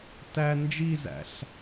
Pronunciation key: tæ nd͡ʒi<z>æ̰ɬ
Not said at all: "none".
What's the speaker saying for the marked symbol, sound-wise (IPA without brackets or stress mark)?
z